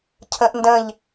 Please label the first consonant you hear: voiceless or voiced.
voiceless